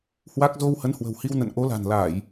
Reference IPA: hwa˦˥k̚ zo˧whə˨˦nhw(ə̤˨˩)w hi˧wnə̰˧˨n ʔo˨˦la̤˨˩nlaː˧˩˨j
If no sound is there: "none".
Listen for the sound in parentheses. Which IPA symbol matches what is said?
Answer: ə̤˨˩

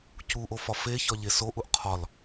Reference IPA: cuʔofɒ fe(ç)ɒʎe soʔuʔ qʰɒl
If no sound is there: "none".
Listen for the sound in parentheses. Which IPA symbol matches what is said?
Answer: ç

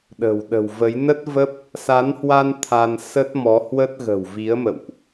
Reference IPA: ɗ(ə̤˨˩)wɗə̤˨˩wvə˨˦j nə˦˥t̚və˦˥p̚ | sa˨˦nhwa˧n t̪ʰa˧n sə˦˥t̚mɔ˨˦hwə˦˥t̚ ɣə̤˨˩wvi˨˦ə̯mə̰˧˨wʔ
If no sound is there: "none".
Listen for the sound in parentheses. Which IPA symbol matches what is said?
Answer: ə̤˨˩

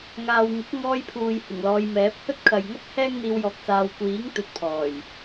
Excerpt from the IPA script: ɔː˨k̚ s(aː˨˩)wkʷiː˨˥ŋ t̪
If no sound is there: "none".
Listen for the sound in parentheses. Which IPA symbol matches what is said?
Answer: aː˨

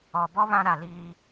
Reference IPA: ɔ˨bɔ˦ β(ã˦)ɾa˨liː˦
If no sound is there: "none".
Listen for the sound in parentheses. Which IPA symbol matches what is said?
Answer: ã˦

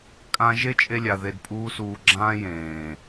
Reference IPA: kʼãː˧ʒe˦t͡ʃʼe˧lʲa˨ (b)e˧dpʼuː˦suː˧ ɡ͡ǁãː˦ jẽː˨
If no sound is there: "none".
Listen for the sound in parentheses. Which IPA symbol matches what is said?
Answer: ð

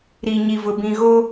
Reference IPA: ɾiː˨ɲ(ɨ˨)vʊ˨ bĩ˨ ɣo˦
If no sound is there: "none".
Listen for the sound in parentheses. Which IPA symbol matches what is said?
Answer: i˨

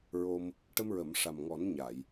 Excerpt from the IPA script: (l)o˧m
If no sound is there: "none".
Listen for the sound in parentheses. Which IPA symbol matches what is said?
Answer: ɹ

